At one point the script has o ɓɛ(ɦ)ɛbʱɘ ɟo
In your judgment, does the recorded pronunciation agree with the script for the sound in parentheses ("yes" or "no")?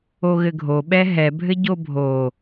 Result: yes